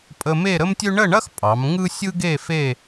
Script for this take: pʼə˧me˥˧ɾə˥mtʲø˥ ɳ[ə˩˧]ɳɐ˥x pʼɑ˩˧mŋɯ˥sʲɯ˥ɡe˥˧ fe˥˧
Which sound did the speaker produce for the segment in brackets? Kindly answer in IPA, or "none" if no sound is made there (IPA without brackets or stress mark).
ə˥˧